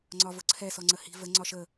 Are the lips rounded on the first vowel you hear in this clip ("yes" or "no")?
yes